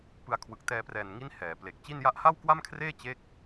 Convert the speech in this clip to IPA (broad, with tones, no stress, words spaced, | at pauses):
pɯ˧a̯kʰwɯ˨˩k̚ tɛː˧prɛː˨˩nŋi˦˥n hɛː˩˦ ple˨˩k̚ t͡ɕi˥˩n ja˦˥ʔha˥˩wkwa˥˩mkʰreː˥˩ t͡ɕe˥˩k̚